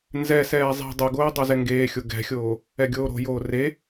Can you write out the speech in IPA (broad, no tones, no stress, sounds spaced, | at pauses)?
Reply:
n z ɛ s ɛː zˤ i̤ dˤ o ɡ oː dˤ o z ɛ ŋ ɡ eː xʲ o ɡ ɛ̤ xʲ oː | ɛ ɡʲ oː ɾ o̤ j oː r e